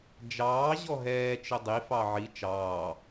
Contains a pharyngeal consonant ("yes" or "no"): yes